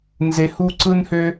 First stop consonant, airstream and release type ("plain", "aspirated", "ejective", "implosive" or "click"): click